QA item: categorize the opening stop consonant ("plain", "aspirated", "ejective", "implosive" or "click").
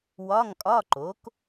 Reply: ejective